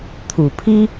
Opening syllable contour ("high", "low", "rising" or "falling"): low